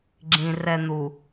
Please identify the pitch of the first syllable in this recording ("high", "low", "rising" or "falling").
low